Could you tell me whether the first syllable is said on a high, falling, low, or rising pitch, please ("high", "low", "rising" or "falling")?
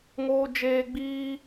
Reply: high